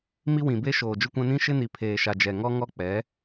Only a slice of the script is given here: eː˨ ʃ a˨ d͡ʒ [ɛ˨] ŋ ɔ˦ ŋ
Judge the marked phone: correct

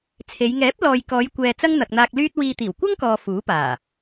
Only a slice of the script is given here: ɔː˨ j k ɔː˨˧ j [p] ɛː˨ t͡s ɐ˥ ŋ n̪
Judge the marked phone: incorrect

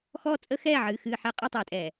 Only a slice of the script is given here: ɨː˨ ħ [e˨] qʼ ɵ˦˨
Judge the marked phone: incorrect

